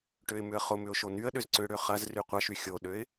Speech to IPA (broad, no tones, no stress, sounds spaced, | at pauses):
ʈ ø ɪ̯ m ʏ ə̯ χ ʊ m ʏ ʊ̯ ʃ o n y ə̯ ɗ ʏ z ǀ ʏ ɽ ø χ ɐ z r y qʷ ɐ ʃ y xʲ o ɗ ø ɪ̯